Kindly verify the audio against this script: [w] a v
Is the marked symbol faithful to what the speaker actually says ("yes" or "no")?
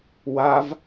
yes